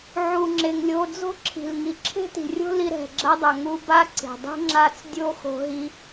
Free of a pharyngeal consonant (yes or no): no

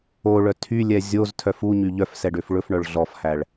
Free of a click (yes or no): yes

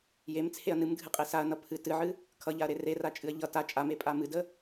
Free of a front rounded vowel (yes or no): yes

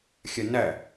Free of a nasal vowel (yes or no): yes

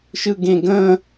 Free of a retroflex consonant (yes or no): yes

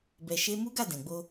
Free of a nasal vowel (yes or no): no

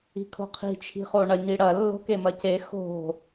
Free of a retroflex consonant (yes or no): no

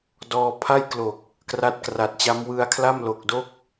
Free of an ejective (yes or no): yes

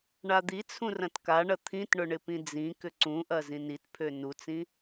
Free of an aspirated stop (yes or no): no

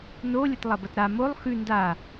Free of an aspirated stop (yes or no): yes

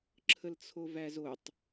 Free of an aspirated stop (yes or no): no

